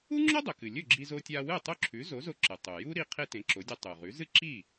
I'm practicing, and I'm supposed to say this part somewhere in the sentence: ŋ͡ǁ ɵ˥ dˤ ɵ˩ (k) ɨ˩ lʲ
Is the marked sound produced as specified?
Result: yes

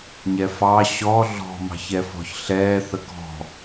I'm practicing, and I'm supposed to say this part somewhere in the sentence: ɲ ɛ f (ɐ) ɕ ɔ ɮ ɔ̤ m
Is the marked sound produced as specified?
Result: no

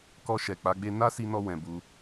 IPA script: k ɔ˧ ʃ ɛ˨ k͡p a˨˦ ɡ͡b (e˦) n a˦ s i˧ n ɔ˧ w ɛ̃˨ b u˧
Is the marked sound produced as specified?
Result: yes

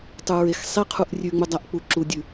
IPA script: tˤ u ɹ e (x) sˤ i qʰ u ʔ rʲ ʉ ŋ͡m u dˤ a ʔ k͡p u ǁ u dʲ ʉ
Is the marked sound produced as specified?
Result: yes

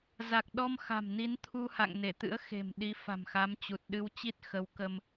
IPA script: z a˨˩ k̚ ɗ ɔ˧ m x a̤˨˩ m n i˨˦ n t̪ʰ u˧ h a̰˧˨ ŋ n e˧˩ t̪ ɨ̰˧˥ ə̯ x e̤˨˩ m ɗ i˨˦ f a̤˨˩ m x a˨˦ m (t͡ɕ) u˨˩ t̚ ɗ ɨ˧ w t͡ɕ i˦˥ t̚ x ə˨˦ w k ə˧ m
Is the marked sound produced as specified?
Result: yes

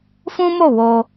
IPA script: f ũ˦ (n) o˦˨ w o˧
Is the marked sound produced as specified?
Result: no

